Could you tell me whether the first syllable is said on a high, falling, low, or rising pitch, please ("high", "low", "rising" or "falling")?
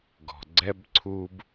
low